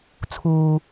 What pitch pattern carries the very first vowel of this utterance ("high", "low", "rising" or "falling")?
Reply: low